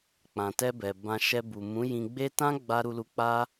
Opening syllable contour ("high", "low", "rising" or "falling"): low